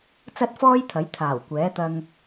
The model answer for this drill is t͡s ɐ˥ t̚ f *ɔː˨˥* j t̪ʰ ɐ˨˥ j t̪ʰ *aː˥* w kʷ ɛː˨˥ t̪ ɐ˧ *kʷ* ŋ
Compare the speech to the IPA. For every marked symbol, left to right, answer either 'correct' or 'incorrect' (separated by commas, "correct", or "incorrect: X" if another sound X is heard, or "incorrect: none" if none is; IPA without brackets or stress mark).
incorrect: ɔː˥, incorrect: aː˨˩, incorrect: none